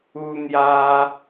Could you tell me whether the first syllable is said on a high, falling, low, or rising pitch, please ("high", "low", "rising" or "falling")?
high